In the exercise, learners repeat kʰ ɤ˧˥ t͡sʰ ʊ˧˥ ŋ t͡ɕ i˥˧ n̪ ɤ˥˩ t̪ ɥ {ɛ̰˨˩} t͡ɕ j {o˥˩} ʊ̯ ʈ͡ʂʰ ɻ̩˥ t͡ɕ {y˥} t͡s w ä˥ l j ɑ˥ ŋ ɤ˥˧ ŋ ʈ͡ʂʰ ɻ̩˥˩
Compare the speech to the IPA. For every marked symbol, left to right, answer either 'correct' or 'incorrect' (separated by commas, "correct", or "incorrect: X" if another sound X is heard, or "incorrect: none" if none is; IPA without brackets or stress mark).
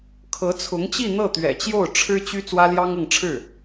correct, correct, correct